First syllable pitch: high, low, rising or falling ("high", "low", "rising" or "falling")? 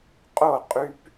falling